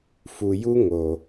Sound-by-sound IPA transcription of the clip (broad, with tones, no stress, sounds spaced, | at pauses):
f u˨ j u˦ ŋ o˨